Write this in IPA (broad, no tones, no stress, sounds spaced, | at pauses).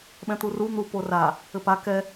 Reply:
ɓ ɛ̃ t̪ u r u n̪ u p o r a | ɘ p a k ɛ